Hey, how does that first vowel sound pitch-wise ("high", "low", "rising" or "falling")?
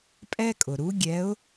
high